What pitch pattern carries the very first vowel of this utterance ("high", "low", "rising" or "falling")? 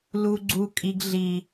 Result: high